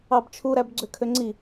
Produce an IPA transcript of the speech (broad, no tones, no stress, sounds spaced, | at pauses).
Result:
ɑ b t͡ʃʰ u ɾ æ b ɡ͡ǀ ø kʰ ø ŋ͡ǀ i